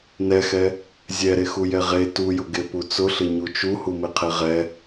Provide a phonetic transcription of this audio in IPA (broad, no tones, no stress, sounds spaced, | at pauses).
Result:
n ɛ x ɛ | zʲ ɛ ɾ e x u j ɛ ʁ e t u j ʊ ɡ e p u t͡s ʊ ɬ ɪ ɲ u t͡ʃ u h u m ɪ qʰ e ʁ ɛ